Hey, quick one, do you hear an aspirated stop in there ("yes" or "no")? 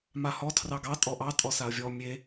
yes